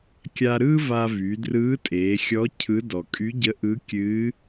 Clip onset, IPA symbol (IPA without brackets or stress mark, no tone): kʲ